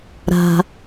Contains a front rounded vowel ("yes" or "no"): no